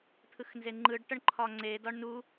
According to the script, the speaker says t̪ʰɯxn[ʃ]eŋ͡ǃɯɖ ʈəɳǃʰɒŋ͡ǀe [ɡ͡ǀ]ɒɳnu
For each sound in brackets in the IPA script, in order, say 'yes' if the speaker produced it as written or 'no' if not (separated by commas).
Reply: no, no